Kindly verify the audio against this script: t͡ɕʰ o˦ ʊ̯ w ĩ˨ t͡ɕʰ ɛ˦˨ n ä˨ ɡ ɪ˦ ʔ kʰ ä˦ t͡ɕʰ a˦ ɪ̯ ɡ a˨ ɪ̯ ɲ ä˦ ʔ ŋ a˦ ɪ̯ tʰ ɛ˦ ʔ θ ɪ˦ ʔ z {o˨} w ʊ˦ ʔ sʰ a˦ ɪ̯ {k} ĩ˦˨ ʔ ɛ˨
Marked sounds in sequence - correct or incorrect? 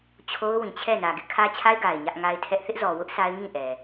incorrect: ɔ˨, incorrect: ŋ

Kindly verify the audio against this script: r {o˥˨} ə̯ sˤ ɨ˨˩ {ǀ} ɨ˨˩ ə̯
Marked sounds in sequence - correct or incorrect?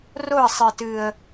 correct, incorrect: t

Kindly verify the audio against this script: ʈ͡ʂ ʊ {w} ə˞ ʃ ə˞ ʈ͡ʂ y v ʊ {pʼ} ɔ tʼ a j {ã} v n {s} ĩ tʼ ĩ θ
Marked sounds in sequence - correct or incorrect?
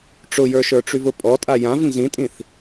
incorrect: j, correct, correct, incorrect: z

